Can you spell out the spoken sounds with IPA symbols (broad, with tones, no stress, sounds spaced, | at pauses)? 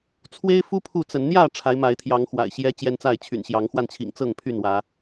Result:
t͡sʰ w e˦ ɪ̯ f u˦ pʰ u˥˨ t͡s ə˨˦ n n̪ j ä˥˨ ʈ͡ʂʰ a˨˦ ɪ̯ m a˨˦ ɪ̯ t̪ʰ j ɑ˨˦ ŋ x w a̰˨˩ ɪ̯ ɕ j ɛ˦ t͡ɕ j ɛ˦ n t͡s a˥˨ ɪ̯ t͡ɕʰ y̰˨˩ n ɕ j ɑ˨˦ ŋ x w a˧ n t͡ɕʰ ḭ˨˩ ŋ t͡s ɤ˥˨ ŋ pʰ y˥˨ n w ä˨˦